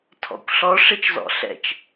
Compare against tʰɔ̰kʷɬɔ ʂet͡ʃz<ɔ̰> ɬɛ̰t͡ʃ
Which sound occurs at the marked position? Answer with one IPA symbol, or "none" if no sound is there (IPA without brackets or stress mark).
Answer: ɔ̰